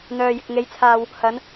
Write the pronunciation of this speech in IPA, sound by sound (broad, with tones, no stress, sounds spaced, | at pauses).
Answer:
n̪ œː˨ j ɪ˨ k̚ ŋ e˨˧ j t͡sʰ aː˨ w | h ɐ˨˧ n